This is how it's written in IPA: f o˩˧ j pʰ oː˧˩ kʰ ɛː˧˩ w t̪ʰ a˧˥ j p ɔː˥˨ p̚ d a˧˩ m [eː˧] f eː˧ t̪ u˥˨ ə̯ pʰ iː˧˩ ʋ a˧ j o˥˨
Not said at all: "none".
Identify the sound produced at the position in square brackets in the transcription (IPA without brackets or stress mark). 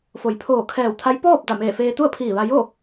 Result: eː˧˩